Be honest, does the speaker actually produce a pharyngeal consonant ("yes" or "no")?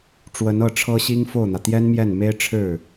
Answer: no